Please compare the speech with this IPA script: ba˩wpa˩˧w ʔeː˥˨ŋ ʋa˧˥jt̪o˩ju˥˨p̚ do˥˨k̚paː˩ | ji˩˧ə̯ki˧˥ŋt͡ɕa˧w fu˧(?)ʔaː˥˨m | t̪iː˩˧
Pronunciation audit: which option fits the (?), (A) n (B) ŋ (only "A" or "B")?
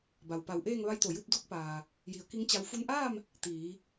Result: A